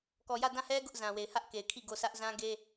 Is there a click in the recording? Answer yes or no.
no